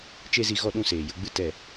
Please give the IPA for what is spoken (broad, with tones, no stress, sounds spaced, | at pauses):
t͡ʃ e˦ z i˧ ɣ ɔ˦˨ ɗ ũ˦˨ s eː˨ j ə˨˦ ɡ͡b ɨ˦ t ɛ˦˨